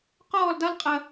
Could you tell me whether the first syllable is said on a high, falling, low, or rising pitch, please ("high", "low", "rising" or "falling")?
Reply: falling